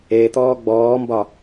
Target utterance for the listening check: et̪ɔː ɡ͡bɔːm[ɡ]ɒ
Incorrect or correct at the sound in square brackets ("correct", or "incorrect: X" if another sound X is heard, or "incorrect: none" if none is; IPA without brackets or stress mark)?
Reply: incorrect: b